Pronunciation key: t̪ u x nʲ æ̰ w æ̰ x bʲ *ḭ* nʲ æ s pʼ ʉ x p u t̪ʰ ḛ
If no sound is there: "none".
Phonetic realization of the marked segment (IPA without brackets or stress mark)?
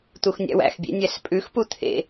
ḛ